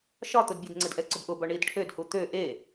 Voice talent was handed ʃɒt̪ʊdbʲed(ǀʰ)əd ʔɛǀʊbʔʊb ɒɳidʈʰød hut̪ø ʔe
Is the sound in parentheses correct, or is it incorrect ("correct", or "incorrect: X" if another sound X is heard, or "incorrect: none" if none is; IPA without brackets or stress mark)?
incorrect: ŋ͡ǀ